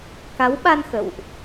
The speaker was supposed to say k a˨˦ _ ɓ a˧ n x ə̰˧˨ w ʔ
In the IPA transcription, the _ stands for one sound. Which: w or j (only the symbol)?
w